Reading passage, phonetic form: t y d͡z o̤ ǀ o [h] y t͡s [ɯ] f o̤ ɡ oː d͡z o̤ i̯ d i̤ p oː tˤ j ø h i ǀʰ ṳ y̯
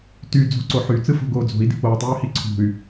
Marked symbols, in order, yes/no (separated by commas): no, yes